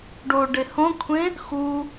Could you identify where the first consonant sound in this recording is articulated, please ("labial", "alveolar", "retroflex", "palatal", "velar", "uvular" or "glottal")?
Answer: retroflex